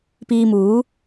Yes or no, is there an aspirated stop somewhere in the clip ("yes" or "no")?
no